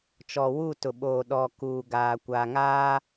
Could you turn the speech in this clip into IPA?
t͡ʃ ɔ˨ w u˦˨ t ʊ˨ ɓ oː˨ ɗ ɔ˨ k uː˨ ɡ aː˨ kʷ aː˨ ŋ aː˦

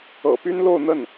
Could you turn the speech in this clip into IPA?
ɤ̰˨˩ p y˥ n l o˥˧ ʊ̯ n̪ ə˥˩ n

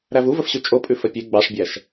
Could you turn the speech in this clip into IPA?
ɾ æ v u v ə f ɕ ʉ t͡ʃʼ o pʼ ʉ f ə pʲ e ɡ͡b ɑ ʂ bʲ æ ʃ

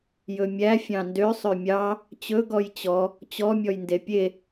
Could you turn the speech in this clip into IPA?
j ɵ mʲ æ fʲ ɑ̃ n d ø sˤ ø mʲ ɑ | t͡ɕ ɵ ɡ ɔ j t͡ɕ ɔ | t͡ɕ ɔ mʲ ɔ j n d e pʲ e

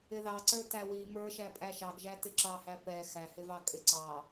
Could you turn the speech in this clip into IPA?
ɪ ð ɑ ǀ ə˞ t æ w i m ə˞ ʃ æ pʼ æ ʃ ɑ ɡ ʒ æ t ɪ ǁ ɑ h æ p ɛ x æ h ɪ v ɑ kʼ ɪ ǀ ɑ

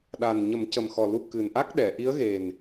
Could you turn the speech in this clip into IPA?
ɗ a˨˩ n ɲ ə˨˩˦ m c ə˨˩ m x ɔ˨˩ l u˧ k ɨ˨˩ n ʔ a˦˥ k̚ ɗ ɛ˨˩˨ ʔ i˧˥ ə̯ ɣ e˨˩ n

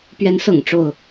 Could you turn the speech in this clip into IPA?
p ɥ ɛ˨˦ n s ɤ̰˨˩ ŋ ʈ͡ʂ o˥˨ ʊ̯

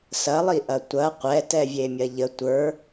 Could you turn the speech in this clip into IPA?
s ɐ lˠ i ʔ ɐ tʷ ɐ qʷ ɛ t ɛ vʲ e mʲ ɐ ʎ ə tʷ ə˞

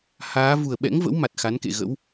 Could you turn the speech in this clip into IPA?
h aː˨˦ v u˨˩ ə̯ ɓ ɛ̰˧˥ ŋ v ə̰˧˥ w m a˨˩ t̚ x a˨˦ n k ḛ˧˨ ɣ ə̰˧˥ w

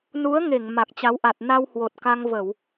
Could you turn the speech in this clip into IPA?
n u˨˦ ə̯ ŋ e˧˩ ŋ m a˨˩ k̚ t͡ɕ a˨˦ w ʔ a˨˩ t̚ n a˧ w h w o˨˩ t̚ k a˧ ŋ v ə˧˩˨ w

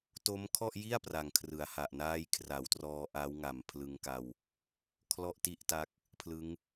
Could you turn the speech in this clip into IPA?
t o˦˥ m kʰ ɔ˥˩ ʔ j i˥˩ a̯ p r a˨˩ ŋ kʰ r ɯ˩˦ a̯ h a˨˩ ʔ n aː˥˩ j kʰ r a˩˦ w t r ɔː˧ ʔ a˦˥ w ŋ a˨˩ m pʰ l ɯ˧ ŋ k a˧ w | kʰ l ɔ˥˩ ʔ t i˥˩ ʔ t a˦˥ k̚ | pʰ l ɯ˦˥ ŋ

